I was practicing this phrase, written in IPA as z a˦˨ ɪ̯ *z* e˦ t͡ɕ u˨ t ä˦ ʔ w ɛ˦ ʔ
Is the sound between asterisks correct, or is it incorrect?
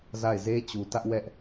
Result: correct